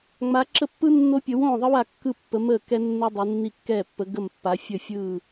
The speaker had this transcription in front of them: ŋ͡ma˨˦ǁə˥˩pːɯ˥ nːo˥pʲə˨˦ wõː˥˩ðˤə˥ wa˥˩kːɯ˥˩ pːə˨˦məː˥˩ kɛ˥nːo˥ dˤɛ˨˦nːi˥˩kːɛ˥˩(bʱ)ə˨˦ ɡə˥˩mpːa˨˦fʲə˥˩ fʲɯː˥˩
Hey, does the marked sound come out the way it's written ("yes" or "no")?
no